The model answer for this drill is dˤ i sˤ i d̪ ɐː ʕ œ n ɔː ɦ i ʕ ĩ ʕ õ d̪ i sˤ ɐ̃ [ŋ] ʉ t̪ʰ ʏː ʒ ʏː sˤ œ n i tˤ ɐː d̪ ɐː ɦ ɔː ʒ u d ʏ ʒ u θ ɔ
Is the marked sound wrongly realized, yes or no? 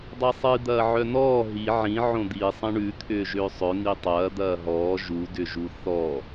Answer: yes